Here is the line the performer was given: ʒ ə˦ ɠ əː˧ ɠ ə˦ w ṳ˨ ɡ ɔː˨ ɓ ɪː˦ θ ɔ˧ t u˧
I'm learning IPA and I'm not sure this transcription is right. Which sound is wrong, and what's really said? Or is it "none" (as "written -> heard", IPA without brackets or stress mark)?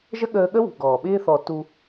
none